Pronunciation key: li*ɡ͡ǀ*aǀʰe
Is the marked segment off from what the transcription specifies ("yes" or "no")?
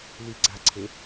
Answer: no